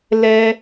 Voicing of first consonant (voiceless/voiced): voiced